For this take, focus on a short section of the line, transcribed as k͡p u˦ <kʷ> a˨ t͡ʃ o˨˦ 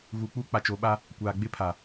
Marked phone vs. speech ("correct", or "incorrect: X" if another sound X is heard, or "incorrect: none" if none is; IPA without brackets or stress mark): incorrect: k͡p